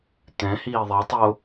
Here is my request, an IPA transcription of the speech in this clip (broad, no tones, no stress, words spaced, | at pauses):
t̪ɛ̃hiː ðˤitˤo